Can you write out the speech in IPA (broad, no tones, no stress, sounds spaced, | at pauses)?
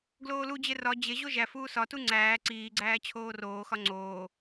ɡ l oː l u d͡ʑ e r ɒ d͡ʑ e ʑ o ʒ æ f uː s ɒ t u ŋ͡ǀ æː ǀ iː ɡ͡ǀ æː t͡ɕʰ oː r oː x ɒ ŋ͡ǀ oː